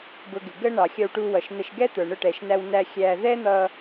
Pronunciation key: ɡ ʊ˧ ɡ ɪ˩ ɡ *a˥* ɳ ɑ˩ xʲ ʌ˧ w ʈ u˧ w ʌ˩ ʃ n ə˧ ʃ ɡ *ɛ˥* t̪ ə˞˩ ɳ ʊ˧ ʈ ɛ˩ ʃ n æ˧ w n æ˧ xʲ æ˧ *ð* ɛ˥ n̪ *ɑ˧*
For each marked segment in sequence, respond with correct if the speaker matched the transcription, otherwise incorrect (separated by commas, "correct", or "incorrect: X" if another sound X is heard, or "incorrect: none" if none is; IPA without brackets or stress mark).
incorrect: ə˥, correct, correct, incorrect: ʌ˧